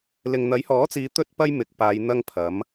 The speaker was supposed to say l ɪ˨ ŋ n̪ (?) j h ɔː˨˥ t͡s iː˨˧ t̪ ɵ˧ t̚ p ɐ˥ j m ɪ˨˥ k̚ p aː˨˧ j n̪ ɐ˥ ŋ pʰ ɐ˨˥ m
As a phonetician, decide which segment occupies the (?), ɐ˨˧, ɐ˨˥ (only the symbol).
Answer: ɐ˨˥